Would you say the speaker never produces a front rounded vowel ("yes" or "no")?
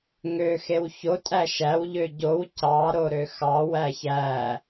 no